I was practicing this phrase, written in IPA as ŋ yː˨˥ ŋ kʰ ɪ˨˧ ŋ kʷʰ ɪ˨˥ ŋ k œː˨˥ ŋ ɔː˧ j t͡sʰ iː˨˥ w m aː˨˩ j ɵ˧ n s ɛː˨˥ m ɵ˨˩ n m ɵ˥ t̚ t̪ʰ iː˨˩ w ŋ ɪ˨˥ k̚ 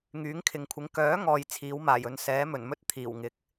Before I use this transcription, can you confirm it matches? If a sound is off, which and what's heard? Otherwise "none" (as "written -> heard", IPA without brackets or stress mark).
none